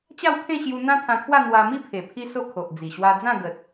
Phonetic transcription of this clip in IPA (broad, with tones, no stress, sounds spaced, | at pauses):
t͡ɕ a˥˧ w pʰ ẽ˥˧ ɕ j u˧ n̪ ã˦ t̪ʰ ã˧ kʰ w a˥˧ n̪ w a˧ m i˥˧ pʰ e˨˩ pʰ i˦ s o˥˧ kʰ o˨ ʔ d͡z i˨˩ ɕ w a˧ d͡z ã˥˧ ɡ ə˨ t̚